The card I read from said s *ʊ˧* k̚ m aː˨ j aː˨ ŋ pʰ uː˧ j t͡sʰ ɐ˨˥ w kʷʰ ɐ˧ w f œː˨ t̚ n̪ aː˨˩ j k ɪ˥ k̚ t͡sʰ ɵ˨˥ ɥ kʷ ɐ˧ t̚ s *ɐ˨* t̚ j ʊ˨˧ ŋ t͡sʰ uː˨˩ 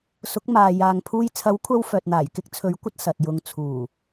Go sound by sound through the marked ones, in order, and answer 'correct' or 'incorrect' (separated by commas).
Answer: incorrect, correct